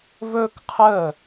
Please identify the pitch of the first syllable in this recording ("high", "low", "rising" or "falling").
high